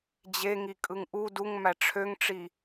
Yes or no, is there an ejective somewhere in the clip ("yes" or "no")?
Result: yes